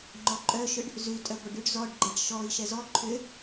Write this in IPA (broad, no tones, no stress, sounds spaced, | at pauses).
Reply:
ŋ͡ǃ ɔ ǃʼ œ ʃ ʏ ɖ | z ʉ tʼ œ ɡʷ œ ɖ y ɖ z ɔ ɖ ɡ͡ǃ ɛ ɖ ʃ ɔ i̯ ʃ ɛ z ɔ ǃʰ ʏ